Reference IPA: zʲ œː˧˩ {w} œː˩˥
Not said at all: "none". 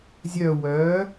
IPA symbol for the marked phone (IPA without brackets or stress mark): w